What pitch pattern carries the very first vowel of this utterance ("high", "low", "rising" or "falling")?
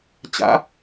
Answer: rising